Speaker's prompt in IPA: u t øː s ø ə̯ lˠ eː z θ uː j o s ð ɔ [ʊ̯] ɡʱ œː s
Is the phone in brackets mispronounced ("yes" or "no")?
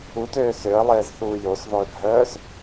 yes